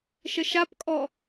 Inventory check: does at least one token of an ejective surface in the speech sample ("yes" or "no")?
yes